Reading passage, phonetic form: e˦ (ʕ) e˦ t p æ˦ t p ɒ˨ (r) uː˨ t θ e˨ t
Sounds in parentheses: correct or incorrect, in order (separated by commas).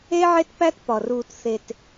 correct, correct